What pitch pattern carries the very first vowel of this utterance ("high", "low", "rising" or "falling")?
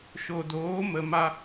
low